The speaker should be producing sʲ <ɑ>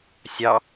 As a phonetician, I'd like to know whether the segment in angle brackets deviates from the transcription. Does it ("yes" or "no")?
no